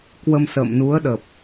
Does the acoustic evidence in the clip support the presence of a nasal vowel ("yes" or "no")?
no